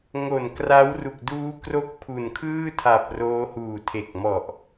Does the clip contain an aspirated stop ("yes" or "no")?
yes